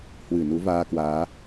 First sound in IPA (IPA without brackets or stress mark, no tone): h